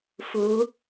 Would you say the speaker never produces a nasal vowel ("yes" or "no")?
yes